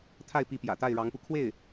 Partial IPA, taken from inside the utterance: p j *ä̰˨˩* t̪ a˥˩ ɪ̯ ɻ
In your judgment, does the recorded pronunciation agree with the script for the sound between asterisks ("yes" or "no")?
yes